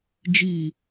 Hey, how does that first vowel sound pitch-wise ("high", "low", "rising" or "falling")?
low